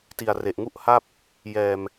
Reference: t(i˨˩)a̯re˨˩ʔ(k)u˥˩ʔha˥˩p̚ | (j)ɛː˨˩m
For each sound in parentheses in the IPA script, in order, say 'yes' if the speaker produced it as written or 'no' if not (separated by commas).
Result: yes, no, yes